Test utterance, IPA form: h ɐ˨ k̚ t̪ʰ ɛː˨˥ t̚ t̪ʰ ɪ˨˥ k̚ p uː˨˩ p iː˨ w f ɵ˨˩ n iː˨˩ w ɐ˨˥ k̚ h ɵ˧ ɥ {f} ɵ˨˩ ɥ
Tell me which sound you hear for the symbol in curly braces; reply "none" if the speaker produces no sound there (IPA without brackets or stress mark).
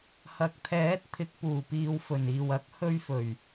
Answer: f